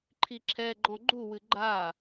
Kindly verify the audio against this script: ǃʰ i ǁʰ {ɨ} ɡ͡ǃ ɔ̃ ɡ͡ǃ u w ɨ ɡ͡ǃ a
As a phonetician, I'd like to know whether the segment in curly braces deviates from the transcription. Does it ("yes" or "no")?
yes